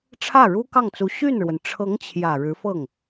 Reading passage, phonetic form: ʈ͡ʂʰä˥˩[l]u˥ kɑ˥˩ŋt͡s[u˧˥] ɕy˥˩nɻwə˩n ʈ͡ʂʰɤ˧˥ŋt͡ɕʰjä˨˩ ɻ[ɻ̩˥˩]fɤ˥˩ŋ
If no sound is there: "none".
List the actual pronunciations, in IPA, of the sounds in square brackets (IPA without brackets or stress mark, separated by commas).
ɻ, u˧˥, ɻ̩˧˥